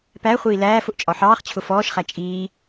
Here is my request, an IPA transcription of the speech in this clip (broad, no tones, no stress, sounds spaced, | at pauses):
p æ χʷ iː l æː f ʊ ʔ t͡ʃʼ ɒ ħ ɑː χ t͡ɕʰ ʊ f ɔː ʃ χ æ t͡ʃʼ iː